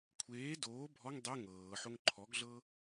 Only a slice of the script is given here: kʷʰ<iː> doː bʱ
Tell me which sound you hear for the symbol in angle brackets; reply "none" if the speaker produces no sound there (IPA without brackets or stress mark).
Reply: eː